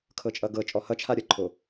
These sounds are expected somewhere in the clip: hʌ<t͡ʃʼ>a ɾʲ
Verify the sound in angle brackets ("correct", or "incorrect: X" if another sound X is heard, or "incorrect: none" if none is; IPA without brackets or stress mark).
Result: incorrect: t͡ʃʰ